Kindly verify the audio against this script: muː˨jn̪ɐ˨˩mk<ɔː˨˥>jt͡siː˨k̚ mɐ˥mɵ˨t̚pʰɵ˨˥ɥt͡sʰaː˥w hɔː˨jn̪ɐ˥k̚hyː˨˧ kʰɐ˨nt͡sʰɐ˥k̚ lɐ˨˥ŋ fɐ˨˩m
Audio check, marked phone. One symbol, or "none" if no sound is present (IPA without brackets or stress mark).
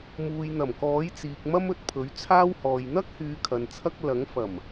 ɔː˨˥